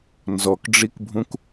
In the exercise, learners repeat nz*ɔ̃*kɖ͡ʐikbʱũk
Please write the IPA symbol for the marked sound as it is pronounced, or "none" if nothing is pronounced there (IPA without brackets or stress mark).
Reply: ɔ